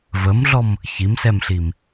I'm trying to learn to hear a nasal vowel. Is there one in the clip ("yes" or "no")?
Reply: no